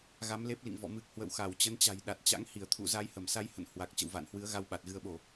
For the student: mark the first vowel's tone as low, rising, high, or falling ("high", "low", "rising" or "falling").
rising